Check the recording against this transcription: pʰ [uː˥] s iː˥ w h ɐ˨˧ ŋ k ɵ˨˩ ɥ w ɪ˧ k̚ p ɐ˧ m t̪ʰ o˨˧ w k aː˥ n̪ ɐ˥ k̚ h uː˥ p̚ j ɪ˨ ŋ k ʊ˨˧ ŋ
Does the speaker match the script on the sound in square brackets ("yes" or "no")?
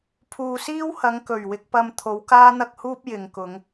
no